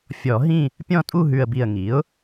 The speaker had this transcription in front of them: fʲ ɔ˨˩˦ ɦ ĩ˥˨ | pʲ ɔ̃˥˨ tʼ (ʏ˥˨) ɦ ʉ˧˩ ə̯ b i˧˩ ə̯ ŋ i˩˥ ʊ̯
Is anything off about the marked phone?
yes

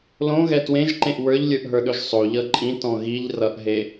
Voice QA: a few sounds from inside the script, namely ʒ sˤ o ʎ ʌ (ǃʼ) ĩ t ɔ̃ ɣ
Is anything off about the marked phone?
no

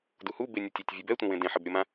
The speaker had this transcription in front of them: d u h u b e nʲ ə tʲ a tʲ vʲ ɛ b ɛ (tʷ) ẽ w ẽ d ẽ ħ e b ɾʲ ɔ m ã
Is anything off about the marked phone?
no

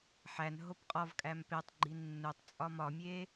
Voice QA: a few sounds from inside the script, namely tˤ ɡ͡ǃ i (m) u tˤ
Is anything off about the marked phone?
yes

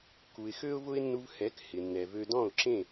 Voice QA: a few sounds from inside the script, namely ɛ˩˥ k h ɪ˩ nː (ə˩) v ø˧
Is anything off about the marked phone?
yes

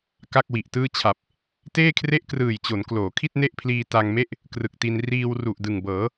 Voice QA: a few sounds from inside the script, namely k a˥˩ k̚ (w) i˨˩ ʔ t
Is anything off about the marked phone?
no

